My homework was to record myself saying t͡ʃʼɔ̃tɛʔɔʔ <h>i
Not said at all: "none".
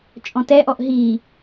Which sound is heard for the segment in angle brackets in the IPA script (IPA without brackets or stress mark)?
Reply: ɦ